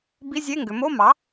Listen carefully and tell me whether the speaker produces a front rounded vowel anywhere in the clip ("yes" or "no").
yes